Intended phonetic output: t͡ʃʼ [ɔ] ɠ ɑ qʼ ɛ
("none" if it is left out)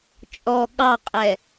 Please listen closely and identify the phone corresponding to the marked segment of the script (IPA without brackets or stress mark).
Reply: ɔ